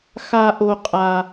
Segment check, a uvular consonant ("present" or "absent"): present